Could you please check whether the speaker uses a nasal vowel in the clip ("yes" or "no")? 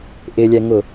no